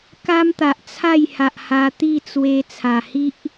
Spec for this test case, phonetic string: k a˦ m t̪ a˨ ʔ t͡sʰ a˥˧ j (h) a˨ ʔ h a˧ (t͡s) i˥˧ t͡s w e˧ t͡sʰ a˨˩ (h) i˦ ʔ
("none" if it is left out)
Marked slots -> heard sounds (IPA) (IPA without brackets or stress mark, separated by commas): h, t̪, h